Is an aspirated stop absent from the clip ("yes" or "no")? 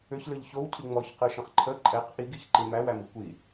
no